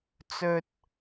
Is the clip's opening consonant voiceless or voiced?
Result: voiceless